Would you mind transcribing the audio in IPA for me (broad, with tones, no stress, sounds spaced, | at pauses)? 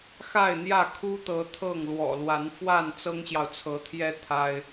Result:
x a˥˨ ɪ̯ n̪ j ä˥˨ kʰ u˦ t̪ ɤ˨˦ t̪ʰ ɤ˥˨ ŋ l w ɔ̰˨˩ l w a˨˦ n f w a˥˨ n t͡s ɤ˦ ŋ ɕ j ɑ˨ ʊ̯ t͡sʰ ɤ˨˦ t̪ʰ j ɛ˦ t̪ʰ a˦ ɪ̯